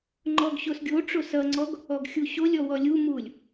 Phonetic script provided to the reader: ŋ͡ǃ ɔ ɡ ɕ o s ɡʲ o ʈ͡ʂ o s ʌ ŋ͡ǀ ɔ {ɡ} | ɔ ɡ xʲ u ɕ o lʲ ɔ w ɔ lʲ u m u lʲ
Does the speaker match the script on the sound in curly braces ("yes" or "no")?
yes